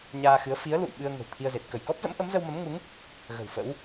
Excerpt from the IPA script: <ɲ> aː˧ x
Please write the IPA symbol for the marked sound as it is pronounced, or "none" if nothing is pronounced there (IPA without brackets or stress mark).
ɲ